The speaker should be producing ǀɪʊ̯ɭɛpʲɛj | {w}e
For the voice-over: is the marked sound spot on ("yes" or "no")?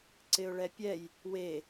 yes